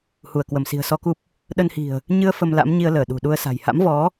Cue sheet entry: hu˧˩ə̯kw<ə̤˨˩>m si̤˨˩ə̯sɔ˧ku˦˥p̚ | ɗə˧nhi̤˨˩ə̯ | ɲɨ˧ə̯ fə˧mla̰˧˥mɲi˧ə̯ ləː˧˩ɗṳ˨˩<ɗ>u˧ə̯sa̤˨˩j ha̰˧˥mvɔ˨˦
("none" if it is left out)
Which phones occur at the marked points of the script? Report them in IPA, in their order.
ə˧˩, ɗ

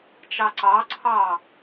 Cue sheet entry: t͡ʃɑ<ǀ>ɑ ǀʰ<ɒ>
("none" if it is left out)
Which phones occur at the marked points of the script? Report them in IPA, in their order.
ǀ, ɑ

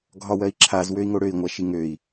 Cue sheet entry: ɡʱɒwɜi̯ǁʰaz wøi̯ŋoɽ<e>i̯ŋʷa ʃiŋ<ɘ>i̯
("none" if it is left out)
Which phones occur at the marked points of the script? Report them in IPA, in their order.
ø, ø

